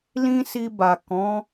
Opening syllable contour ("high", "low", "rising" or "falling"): high